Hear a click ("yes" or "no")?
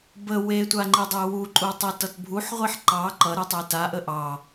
yes